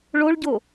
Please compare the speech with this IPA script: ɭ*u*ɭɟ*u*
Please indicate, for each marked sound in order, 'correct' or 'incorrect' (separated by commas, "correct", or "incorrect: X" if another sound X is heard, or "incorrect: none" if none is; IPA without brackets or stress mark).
incorrect: o, incorrect: o